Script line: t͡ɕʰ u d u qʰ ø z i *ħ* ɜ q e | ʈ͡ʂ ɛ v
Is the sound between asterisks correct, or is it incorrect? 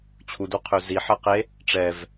correct